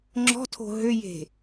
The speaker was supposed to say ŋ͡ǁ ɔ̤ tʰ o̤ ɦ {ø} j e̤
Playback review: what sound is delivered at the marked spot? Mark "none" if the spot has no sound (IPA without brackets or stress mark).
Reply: ø